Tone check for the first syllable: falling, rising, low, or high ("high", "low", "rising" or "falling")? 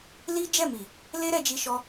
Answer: high